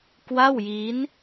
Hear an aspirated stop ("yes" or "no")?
no